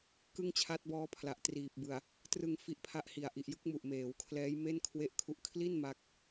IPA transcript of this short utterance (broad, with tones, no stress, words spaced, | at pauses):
kɯ˥˩ŋt͡ɕʰa˦˥t̚bɔː˦˥pʰla˨˩ʔ triː˨˩p̚bɯ˨˩a̯ | trɯ˧ŋ fi˦˥ʔpʰa˥˩ʔhi˨˩a̯ ʔi˨˩ʔjɯ˦˥k̚mu˨˩ʔ meː˩˦wkʰlɛː˦˥jme˥˩n kʰwe˥˩ʔkʰu˦˥ʔ kʰli˥˩n ma˦˥k̚